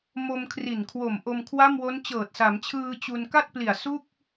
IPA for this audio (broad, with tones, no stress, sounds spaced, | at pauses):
m o˧ m kʰ r i˨˩ n kʰ w o˨˩ m ʔ o˧ m kʰ w a˥˩ m w o˦˥ n t͡ɕ ɤː˨˩ t̚ s a˩˦ m t͡ɕʰ ɯː˧ t͡ɕ u˧ n k a˥˩ t̚ p l i˨˩ a̯ s u˥˩ k̚